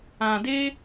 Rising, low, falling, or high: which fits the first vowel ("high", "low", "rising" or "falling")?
low